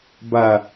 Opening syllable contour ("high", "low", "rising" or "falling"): falling